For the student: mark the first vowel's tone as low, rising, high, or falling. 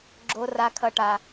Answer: high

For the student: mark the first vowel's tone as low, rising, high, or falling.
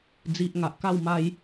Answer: low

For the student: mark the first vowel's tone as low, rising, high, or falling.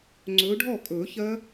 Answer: rising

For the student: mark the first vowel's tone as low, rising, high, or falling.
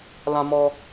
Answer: high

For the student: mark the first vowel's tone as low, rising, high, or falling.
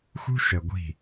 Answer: high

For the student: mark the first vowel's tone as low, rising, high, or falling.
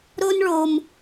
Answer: high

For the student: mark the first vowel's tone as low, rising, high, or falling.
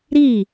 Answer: falling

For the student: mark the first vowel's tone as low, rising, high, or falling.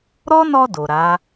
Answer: high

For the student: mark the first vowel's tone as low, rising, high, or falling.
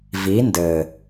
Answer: rising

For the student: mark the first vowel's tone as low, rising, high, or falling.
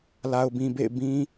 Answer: low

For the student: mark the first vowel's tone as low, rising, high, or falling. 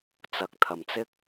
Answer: low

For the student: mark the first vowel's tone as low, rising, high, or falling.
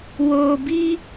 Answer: low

